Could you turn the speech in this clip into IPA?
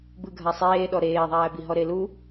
b ɯ ɡʱ a sˤ eː ɗ ɔ ɾ eː ðˤ æː b i ɦ ɔ ɾ e l u

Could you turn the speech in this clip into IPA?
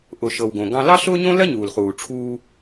ʔ ʊ˩ ʃ ɤ˩ w ɡ õ˩ ɡ ɑ̃˧ l ɑ˥ ɬ ʊː˥ ɲ õ˥ l ɜ˥ ɲ uː˩ l χ uː˩ ʈ͡ʂʰ uː˧

